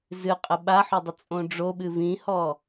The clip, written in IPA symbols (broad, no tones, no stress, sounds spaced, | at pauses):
z ɨ qʼ ə ɓ a ħ o dˤ ə t͡sʼ õ ɖ͡ʐ o ɓ ɨ v ĩ h ɔ